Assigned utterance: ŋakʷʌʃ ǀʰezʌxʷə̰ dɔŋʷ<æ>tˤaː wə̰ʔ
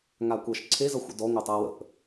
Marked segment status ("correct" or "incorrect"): correct